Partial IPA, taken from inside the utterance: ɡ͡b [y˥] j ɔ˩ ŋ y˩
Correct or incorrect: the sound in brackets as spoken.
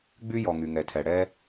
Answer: correct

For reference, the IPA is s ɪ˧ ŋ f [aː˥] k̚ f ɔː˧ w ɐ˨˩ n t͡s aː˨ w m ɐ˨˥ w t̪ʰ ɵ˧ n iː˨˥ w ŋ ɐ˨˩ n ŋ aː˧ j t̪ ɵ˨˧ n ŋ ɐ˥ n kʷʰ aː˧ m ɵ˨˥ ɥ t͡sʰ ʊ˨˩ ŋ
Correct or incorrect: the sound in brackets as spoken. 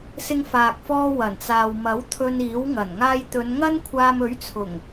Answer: incorrect: aː˨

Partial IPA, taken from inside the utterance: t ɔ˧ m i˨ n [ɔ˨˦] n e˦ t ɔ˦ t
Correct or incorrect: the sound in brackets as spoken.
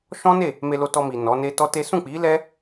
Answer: correct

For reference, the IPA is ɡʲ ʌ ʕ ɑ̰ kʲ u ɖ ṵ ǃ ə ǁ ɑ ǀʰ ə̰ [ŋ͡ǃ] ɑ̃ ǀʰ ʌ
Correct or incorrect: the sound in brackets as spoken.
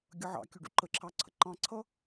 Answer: incorrect: ǃ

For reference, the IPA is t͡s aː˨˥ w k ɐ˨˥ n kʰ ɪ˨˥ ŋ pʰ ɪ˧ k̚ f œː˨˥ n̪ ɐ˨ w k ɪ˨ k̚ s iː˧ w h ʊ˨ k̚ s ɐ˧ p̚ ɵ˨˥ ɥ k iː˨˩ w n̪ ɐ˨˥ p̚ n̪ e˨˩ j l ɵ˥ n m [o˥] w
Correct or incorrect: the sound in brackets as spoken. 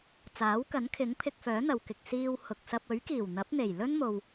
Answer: incorrect: o˨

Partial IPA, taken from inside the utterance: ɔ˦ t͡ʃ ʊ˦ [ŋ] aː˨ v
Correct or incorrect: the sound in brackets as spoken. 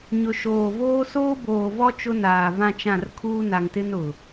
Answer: incorrect: n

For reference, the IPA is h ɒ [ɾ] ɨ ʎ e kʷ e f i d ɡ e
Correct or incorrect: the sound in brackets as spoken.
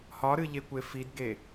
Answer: correct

